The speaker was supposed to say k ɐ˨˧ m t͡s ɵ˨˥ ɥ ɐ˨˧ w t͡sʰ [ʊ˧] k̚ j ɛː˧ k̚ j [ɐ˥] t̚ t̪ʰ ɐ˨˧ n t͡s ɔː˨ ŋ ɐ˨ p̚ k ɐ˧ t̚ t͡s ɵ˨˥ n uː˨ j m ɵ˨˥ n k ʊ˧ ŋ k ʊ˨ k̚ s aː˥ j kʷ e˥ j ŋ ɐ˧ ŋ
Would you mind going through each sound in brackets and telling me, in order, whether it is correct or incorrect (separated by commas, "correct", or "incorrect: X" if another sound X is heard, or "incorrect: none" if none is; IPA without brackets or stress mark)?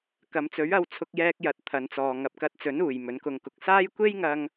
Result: correct, incorrect: ɐ˨